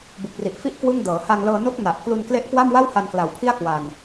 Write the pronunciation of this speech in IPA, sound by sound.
bu˨˩k̚ri˨˩ʔ fi˥˩ʔ kwɯ˥˩ŋ dɤː˩˦ ha˧ŋlɤː˧no˦˥k̚ na˨˩ʔ klu˧nkle˦˥ʔ kwa˥˩mwa˥˩wha˧n kla˨˩wpʰi˥˩a̯ kwa˧n

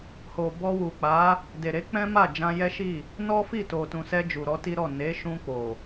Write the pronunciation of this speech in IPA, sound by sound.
ho˨bɔ˧wu˨k͡pa˨˦ | de˨ɾe˨˦ k͡pɛ̃˦ma˦˨ d͡ʒã˧jɛ˦ ʃi˦˨ | nɔ˦fi˦˨ to˨tũ˨sɛ˧ d͡ʒu˨ɾɔ˨˦ti˦ɾɔ˦˨ ne˨˦ ʃũ˧k͡po˨

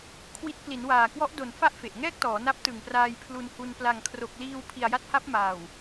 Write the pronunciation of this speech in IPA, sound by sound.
kʰwi˦˥t̚ pli˩˦nwaː˨˩kwɔ˦˥ʔdo˨˩n fa˥˩ʔfe˨˩ʔŋɛː˥˩k̚tɔː˩˦ na˦˥p̚tɯ˨˩ŋpraː˧j pʰlu˧nhu˧n pla˨˩ŋkʰro˨˩k̚liː˧w pʰi˨˩a̯ja˦˥t̚ha˦˥p̚ maː˨˩w

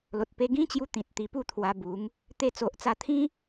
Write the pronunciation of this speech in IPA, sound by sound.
lo˨t̚pe˧ɡĩ˦t͡ɕju˧ t̪ĩ˨t̚t̪i˧ pu˥˧t̪ʰwa˧bu˨˦ŋ | t̪e˧t͡so˨ʔt͡sa˧t̪ʰĩ˦

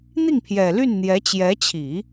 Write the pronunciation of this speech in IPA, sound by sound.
n̪i˥˩ŋpʰjɛ˨˩ ly˥˩n n̪jɛ˧˥t͡ɕjɛ˧˥t͡ɕʰi˨˩˦

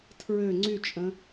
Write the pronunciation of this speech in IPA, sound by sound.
tʰɹø ŋ͡ǀyt͡ʃʼə̃

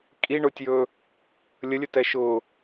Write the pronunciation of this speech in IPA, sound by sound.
kʼiɳʊːtʲjɵː | lʲəlʲɵtɛ ʃʊː

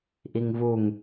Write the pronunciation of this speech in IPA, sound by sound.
ʔiŋvuŋ

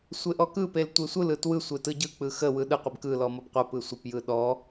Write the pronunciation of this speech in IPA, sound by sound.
sʷeʔɔkɯpel tʷesʷɯlɯ twɯsʷe tɯɟɯk͡pɯ xəwɯ ɗɯqʷeb kɯlɔ mɔbqʷəpɯ sʷəpjɯ ɗɔ

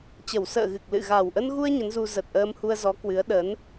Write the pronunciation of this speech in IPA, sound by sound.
t͡ɕə˨˩wsə̰ː˧˨ɣɨ˨˩k̚lɨ̰˧˨ ɣa˨˩wʔə˧nɣu˧ə̯ ɲə˨˦nzu˧ zə˨˩t̚ʔəː˧m hu˧ə̯zɔ˨˦kwɨ˨˦ə̯ ɗə˨˦n

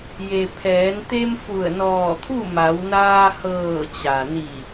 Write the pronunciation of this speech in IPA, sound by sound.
je˩pʰɛː˩˧nt̪e˧m fu˧˩ə̯nɔː˧˩t̪ʰu˥˨ ma˩˧wnaː˧ hɤː˧˩t͡ɕa˩ni˧˩

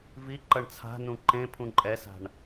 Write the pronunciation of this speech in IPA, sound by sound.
vi ǃʌɳt͡sʰa̤nũ ǃẽpʰũ ǃʼɛsa̤ɳ

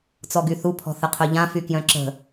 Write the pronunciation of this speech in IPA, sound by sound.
t͡sɔɡyθu pʰɔ̤θəqʰœʎã fykjœ̃ǁə̤

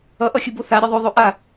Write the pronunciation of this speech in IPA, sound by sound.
ʌʔʌxʲɯbo θaɾʲʌ ðˤoðˤo ʔa

